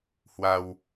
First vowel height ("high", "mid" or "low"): low